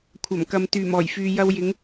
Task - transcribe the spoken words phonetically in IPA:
kʷʰ ɐ˨˩ m k ɐ˨ m t̪ yː˨˩ m ɔː˨˩ j f yː˨ j ɐ˧ w j ɪ˨˧ ŋ

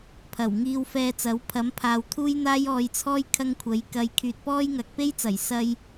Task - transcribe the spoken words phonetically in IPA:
pʰ ɐ˨˩ w ŋ iː˧ w f ɛː˧ t͡s ɐ˨˥ w pʰ ɐ˨˥ m pʰ aː˨ w t̪ʰ uː˥ j n̪ aː˥ j ɔː˧ j t͡sʰ ɔː˥ j kʰ ɐ˥ ŋ kʷʰ ɐ˨˥ j k ɐ˨ j kʰ yː˨ t̚ p ɔː˥ j ŋ ɐ˨ k̚ p e˥ j t͡s ɐ˨˩ j s ɐ˧ j

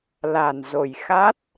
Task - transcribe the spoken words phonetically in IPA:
l a˨˩ n z o˨˩ j x a˦˥ t̚

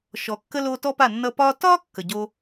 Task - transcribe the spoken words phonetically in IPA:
ʃ ɔ˩ kː ə˥ l o˧ t ɔ˥ p a˥˩ nː ʌ˧ p ɒ˧ t ɒ˥ kː ə˩ ɟ o˥

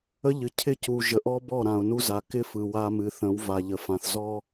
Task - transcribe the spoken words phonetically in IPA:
ə˦ ʎ ɨ˨ cʰ ɪ˦ c u˨ ʒ ə˨ ʔ ɔ˦ b ɔ˦˨ ɾ ã˨ ʊ̯ n u˦ z a˨ k ɪ˦ f ɯ˨ w a˦ m ɨ˨ θ ə̃˨˦ w v a˨ ʎ ə˨ f ã˨ θ z ɔ˦

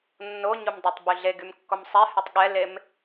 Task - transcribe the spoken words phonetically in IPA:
nː o ɲ u m dˤ o tˤ b y ɮ e ɡ y m kː ɔ m sˤ ɛ h y tˤ ɠ ɛ l e m

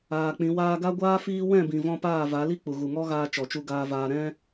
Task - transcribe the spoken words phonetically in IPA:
aː˨ k͡p ĩ˨˦ w aː˧ ɡ a˦ ɡʷ aː˦ f iː˦ w ɛ̃˦˨ b ĩ˨ v ɔ̃˧ p aː˦˨ v a˨˦ l i˦ k͡p u˨ ɣ u˨ ŋ ɔ˦ ɣ aː˧ t͡ʃ ɔ˨ t͡ʃ u˧ ɡ aː˧ v aː˧ ɾ ɛ̃˦

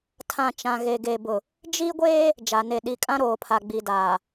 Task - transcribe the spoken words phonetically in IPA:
tʰ ã˨ t͡ʃ ã˨ ɣ e˨ ɡ e˨ b ʊ˨ | d͡ʒ i˦ ɡʷ eː˦ | d͡ʒ a˨ n e˦˨ ɗ i˦˨ kʼ ã˦ ɾ oː˨ pʰ a˨ ɡ͡b i˨ d aː˨

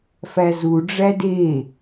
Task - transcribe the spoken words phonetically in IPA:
f æ z u ɖ͡ʐ æ d e

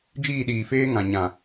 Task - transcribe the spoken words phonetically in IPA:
d͡ʒ iː˦˨ ɗ iː˨ f eː˦ ŋ ã˨ ɲ ã˨

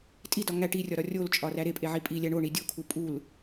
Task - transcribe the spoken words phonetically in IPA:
tʼ i d ɒ ŋ æ ʈ i rʲ ɒ ɾ ɒ rʲ o l t͡ʃʼ ɒ r æ ɾ e pʼ e ʕ i pʼ i lʲ æ ɳ o ɳ i dʲ o kʰ u pʼ u l

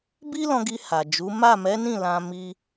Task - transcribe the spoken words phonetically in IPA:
b i˦ l ɔ̃˧ ɡ i˧ h a˨ d͡ʒ u˨˦ m a˦˨ m ɛ˨˦ n ĩ˦˨ l ã˧ m i˦

